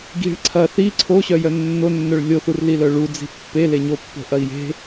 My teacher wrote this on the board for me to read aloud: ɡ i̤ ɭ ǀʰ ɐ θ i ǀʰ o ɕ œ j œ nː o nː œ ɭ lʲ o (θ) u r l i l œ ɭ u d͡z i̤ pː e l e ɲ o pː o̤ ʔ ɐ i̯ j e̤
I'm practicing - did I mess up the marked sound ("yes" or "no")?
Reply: no